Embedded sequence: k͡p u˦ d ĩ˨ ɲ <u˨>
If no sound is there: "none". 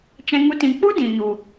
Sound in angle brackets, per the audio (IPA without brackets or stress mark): u˨